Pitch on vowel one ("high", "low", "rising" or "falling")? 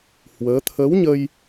rising